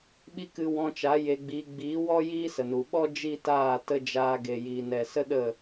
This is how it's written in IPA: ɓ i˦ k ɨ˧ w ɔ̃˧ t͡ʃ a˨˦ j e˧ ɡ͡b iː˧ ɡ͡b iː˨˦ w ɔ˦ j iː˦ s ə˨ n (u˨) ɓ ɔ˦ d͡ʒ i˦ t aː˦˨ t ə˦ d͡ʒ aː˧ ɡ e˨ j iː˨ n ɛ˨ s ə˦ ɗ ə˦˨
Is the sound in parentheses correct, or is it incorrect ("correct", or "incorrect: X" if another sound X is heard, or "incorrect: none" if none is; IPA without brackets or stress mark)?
correct